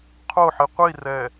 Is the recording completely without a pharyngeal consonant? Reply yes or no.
no